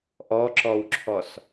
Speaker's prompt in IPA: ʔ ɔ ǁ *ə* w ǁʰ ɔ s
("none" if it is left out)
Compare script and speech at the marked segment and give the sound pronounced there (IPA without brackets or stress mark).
ɔ